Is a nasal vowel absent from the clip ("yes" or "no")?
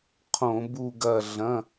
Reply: no